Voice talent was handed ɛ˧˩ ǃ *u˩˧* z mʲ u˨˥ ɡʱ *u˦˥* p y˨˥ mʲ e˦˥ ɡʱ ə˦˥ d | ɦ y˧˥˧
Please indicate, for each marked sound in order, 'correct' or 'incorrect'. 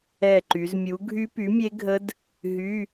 incorrect, incorrect

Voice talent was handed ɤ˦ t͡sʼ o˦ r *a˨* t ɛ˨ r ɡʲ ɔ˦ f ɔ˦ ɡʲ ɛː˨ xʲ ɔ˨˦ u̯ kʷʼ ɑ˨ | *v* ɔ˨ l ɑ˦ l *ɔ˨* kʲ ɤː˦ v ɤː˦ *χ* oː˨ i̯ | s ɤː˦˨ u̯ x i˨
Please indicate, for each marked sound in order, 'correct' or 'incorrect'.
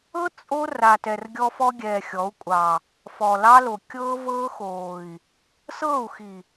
correct, incorrect, incorrect, incorrect

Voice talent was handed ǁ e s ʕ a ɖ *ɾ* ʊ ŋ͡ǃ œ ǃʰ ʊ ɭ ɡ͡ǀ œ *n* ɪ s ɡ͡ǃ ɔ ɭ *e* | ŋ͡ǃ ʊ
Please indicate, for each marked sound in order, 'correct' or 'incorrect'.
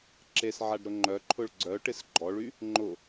correct, incorrect, incorrect

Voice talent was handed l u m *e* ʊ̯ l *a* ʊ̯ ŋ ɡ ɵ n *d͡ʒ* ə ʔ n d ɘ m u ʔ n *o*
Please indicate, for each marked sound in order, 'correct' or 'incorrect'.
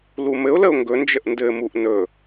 incorrect, incorrect, correct, incorrect

